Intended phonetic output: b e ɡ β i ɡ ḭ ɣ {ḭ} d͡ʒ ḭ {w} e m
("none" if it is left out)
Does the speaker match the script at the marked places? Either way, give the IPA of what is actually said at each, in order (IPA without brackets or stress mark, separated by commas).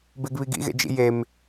ḛ, j